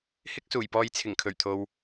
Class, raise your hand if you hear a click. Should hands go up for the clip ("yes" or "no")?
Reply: no